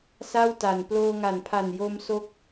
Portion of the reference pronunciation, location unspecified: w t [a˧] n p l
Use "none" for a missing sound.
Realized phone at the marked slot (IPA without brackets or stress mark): a˨˩